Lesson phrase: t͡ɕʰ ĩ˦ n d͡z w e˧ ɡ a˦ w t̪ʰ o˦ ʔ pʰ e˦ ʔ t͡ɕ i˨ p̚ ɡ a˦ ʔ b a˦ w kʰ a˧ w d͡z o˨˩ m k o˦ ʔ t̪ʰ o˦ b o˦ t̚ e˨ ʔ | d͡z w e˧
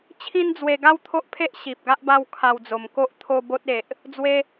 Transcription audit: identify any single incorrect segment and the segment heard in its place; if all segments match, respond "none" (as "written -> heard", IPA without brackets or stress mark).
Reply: t͡ɕ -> ɕ